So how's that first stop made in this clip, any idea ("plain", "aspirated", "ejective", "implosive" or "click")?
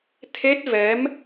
aspirated